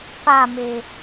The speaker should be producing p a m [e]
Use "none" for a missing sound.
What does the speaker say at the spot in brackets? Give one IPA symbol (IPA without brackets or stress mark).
e